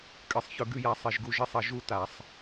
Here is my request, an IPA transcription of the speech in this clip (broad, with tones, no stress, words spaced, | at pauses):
kʼɨ˧˩˧sˤçɵ˦˨ ɡʉ˦˨ja˨˦ sˤi˧˩˧ʒɡu˦ ʒi˦˨sˤɐ˧˩˧ ʒu˦˨ta˧˩˧sˤ